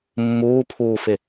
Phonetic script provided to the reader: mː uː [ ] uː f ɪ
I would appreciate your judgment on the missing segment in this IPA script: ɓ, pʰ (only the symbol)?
pʰ